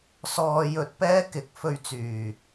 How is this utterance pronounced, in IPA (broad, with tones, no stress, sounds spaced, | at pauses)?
s ɔː˧ j ɵ˧ t̚ p ɛː˥ k ɪ˨˥ k̚ f ɵ˧ ɥ t͡s yː˨˩